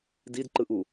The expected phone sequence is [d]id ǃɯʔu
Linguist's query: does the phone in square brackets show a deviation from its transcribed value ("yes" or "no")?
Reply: no